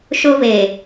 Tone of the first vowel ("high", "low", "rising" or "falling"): high